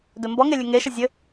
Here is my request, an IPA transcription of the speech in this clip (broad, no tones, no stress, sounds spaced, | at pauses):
d ɵ m b ɔ ŋ e lʲ ɘ ŋ e ʃ ə zʲ ɘ